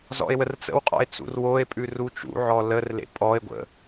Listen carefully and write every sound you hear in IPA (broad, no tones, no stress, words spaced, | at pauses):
zɔ̰e̯wərt͡sə̰wqʼɔ̰e̯ t͡sṵrwoe̯pʼʉr ut͡ʃṵʕɔ lərlḛ pʼɔe̯ ɡʷə̰